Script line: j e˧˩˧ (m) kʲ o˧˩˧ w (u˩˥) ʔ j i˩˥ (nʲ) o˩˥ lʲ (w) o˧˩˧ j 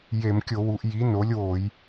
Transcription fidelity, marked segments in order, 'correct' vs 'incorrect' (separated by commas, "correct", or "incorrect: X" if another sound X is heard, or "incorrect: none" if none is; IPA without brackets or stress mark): correct, correct, incorrect: n, correct